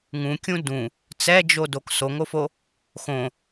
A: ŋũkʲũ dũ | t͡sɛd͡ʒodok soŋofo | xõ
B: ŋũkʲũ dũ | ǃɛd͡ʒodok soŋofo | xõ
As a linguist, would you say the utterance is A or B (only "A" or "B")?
A